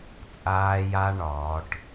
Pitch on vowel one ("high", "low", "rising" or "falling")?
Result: low